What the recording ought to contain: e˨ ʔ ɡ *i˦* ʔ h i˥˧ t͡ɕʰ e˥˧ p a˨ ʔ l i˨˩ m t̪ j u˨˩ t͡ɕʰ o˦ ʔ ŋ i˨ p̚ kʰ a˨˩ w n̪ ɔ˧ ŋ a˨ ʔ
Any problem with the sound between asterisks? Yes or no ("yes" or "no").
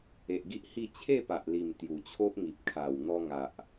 no